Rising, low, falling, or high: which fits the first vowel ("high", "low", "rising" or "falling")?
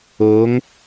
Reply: rising